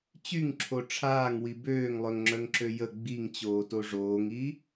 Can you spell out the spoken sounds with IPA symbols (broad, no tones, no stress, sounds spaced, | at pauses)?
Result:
t͡ɕ y ŋ ǁʰ o ʈ͡ʂʰ aː ŋ w i b øː ŋ lˠ œ ŋ ŋ͡ǁ œ ŋ ǁ ø j ə ɡ͡b i ŋ t͡ɕ oː t o ʐ oː ŋ i